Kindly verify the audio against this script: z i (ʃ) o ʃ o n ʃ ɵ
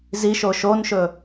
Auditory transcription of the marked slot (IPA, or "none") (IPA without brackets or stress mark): ʃ